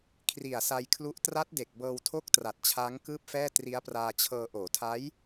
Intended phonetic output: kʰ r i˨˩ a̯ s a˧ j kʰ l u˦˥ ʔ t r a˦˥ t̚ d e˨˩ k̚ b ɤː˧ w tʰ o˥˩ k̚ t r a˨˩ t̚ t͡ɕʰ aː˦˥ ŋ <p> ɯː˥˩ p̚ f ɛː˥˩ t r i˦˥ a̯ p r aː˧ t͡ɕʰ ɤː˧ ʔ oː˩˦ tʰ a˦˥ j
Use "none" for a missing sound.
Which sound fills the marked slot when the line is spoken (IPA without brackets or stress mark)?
k